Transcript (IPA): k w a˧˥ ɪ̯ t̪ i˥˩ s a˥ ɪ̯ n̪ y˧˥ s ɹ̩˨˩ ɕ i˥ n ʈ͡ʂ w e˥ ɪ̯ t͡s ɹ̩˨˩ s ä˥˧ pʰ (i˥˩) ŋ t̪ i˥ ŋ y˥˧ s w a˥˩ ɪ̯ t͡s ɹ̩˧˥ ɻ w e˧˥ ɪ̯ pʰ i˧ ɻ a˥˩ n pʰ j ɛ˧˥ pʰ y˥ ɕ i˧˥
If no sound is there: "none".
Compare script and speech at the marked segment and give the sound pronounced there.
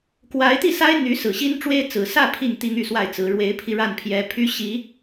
i˥˩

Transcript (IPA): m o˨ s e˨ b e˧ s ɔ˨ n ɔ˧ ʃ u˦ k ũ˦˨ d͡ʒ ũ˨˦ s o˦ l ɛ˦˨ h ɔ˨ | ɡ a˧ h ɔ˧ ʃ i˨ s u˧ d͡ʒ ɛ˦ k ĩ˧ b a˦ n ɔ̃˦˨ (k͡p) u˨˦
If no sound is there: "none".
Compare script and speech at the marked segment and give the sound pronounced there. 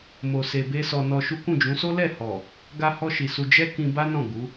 ɡ͡b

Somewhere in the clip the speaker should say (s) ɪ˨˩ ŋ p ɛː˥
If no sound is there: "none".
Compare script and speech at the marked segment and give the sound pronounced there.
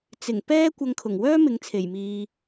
t͡s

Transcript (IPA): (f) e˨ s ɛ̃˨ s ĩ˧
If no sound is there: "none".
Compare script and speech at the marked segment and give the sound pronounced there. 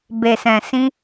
b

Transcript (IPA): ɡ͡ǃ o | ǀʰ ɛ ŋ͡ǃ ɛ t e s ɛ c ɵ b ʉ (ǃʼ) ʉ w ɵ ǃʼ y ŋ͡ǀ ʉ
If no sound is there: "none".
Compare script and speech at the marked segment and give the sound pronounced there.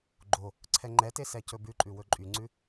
ǃʼ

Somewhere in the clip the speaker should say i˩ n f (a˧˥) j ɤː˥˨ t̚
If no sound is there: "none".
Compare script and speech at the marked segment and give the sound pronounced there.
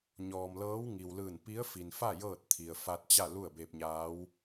a˥˨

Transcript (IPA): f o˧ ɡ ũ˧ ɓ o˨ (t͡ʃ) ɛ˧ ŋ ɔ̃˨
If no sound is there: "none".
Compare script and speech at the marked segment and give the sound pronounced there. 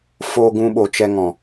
t͡ʃ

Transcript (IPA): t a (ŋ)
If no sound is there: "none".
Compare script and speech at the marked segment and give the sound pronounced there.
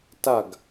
ɡ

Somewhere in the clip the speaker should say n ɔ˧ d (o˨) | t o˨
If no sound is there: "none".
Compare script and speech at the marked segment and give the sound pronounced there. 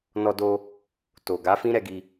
o˧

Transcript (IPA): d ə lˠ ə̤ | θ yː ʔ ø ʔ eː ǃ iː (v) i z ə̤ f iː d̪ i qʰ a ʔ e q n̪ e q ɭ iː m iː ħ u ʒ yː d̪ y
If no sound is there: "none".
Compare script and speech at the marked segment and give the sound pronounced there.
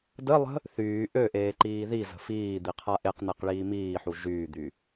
ð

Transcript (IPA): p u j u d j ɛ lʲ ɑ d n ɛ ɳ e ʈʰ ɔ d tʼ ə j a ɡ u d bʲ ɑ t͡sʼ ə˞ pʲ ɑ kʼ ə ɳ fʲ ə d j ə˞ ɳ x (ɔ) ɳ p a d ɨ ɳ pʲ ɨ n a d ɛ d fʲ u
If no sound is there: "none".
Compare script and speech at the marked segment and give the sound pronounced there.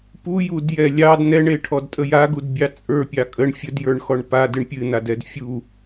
ɔ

